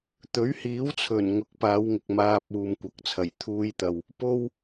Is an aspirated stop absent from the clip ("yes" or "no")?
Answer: no